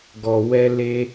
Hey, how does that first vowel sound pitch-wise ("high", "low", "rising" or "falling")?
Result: low